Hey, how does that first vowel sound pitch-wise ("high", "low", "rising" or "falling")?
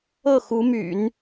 falling